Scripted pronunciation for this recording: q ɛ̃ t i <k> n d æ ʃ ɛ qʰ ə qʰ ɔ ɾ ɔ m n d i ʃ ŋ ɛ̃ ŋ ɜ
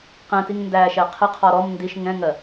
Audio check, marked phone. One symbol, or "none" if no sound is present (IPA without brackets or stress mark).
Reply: ŋ